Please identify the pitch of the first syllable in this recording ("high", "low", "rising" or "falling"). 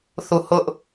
falling